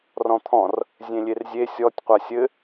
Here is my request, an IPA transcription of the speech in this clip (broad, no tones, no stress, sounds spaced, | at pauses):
r ɔ̃ t̪ʰ ɔ̃ r | zʲ ẽ lʲ e r zʲ e sʲ ɔ tʲ qʷ a sʲ ɘ